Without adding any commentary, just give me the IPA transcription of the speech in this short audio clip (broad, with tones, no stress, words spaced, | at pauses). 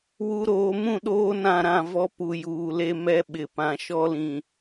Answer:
wu˨ɾoː˨mũ˦˨ ɗoː˦nã˦˨ɾã˦˨vɔ˦ pu˨juː˨le˦ mɛ˦ɓɪ˨ pã˨ʃɔ˦lĩ˨